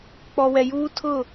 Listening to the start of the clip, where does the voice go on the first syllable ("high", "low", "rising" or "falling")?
low